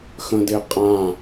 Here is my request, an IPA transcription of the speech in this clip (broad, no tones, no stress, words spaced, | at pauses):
xə̃de qʼã